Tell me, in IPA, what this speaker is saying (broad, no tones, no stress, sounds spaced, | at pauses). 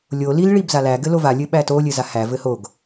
lʲ o l i l ɭ i b z a l æ ɡ ɘ l o v a lʲ ɘ ɓ æ t o lʲ ɘ z a h æ v ɘ h o ɡ